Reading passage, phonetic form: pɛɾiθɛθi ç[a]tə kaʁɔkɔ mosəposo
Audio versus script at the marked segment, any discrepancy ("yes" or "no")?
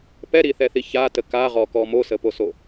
no